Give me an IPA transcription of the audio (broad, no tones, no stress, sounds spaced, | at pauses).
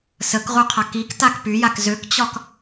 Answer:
s ə k ʁ u qʰ a k i k t a k p y j a k z ø k t͡ɕ ɒ k